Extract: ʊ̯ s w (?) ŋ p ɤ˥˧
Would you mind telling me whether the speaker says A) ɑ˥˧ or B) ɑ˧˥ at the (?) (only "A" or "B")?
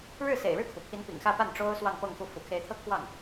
A